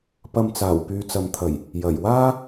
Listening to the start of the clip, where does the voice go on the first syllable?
low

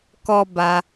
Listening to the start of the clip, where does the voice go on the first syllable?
high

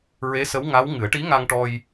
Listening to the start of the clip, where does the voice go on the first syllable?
rising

